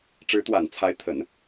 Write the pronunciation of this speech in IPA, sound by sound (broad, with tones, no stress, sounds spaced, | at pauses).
ʈ͡ʂ ɻ̩˧˥ t̪ w a˨˩ n t͡sʰ a˧˥ ɪ̯ t̪ʰ ə˨˩˦ n